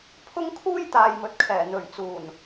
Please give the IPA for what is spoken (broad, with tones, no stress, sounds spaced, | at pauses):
pʰ ʊ˥ ŋ kʰ uː˥ j t̪ aː˨ j m ɵ˨ t̚ kʰ ɛː˨˩ n̪ ɵ˨˩ ɥ t͡s uː˨˩ n